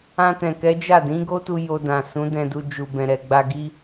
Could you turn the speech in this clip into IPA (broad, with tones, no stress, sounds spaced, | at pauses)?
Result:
ã˧ t ɛ̃˨ k ɛ˨˦ d͡ʒ a˦˨ d ĩ˨˦ ɡ o˦ t u˧ j o˧ d ã˨ s ũ˨˦ d ɛ̃˧ d u˧ d͡ʒ u˨ b ɛ̃˨ ɾ ɛ˨ ɡ͡b a˧ ɡ i˦